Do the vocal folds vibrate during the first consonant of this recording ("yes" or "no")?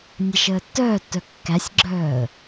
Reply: yes